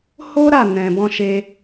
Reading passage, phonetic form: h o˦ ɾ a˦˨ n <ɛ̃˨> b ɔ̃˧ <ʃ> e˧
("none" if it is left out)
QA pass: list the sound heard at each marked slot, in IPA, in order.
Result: ɛ̃˨, ʃ

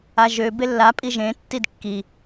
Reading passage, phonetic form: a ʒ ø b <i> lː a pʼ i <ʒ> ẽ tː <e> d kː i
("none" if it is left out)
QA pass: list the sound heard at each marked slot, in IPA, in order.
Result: e, ʒ, i

